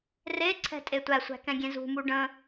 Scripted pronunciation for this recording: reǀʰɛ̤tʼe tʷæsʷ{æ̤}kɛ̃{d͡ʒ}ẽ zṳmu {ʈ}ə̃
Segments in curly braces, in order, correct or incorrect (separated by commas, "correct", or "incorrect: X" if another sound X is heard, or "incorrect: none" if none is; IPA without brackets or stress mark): correct, incorrect: ɡʲ, incorrect: ɖ